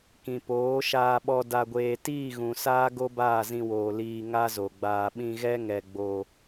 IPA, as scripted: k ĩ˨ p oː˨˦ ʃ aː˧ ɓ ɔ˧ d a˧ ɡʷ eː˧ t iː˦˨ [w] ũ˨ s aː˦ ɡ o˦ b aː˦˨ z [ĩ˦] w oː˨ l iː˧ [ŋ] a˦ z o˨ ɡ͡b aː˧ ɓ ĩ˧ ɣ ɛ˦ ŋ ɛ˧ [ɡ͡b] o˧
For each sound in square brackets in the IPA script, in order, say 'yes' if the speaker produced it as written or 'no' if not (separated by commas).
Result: no, no, yes, yes